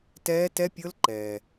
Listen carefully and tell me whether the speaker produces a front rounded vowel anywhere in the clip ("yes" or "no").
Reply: no